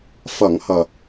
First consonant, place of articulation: labial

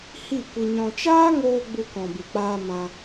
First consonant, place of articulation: glottal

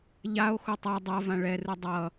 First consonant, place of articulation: palatal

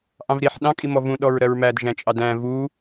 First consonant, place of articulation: glottal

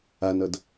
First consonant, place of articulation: alveolar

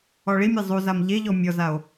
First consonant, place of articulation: retroflex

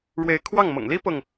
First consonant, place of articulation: retroflex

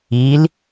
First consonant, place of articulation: alveolar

